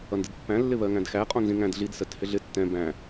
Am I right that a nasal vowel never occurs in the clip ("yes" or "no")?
no